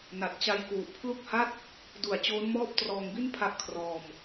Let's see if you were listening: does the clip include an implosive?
no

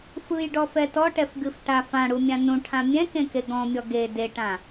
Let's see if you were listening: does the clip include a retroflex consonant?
yes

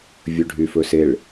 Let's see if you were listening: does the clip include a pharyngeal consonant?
no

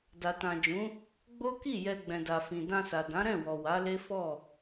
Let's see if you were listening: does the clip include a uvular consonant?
no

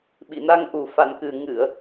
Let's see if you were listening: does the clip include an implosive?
yes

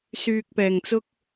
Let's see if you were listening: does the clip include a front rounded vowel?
yes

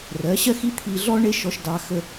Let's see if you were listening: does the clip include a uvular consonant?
no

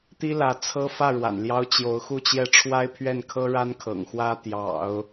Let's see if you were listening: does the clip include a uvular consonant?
no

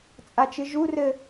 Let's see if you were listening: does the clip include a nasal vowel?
no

